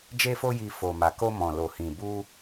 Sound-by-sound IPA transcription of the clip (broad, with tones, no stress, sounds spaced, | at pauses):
d͡ʒ e˧ f o˧ j i˧ f o˨ m a˨ k o˧ m ɔ̃˨ l o˨ h ĩ˨ b u˧